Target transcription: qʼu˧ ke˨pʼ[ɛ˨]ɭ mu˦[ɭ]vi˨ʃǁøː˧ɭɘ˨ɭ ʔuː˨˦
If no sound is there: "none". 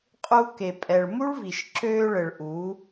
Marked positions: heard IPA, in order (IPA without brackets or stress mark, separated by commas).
ɛ˨, ɭ